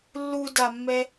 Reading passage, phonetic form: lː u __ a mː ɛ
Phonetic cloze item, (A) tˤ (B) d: B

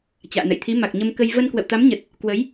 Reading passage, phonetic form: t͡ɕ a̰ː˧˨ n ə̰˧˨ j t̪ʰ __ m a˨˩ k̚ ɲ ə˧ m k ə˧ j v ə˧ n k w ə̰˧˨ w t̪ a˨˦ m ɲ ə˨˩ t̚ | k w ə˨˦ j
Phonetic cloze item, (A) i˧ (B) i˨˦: B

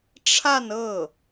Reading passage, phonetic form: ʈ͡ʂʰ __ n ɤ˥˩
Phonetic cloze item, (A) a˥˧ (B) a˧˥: A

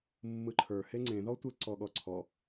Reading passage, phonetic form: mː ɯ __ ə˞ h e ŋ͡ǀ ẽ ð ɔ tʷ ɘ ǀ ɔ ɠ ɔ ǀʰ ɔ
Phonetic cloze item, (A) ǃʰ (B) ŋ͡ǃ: A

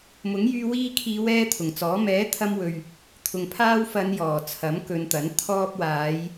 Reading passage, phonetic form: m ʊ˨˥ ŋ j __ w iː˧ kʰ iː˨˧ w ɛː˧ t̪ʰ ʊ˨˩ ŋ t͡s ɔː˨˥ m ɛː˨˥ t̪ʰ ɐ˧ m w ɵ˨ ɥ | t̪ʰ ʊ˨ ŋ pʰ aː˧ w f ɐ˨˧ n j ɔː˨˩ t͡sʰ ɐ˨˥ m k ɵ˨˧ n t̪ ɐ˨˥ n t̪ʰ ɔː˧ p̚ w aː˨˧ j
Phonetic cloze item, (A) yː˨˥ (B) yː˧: B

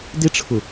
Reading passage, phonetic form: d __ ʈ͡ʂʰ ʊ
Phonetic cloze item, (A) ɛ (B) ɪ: B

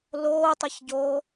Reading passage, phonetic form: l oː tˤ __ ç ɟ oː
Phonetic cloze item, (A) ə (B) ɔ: A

